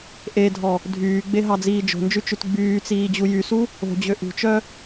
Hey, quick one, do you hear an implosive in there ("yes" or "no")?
no